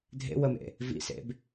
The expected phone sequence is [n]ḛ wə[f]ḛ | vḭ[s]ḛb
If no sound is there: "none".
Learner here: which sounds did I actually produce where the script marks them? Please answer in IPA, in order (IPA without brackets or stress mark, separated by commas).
dʱ, m, s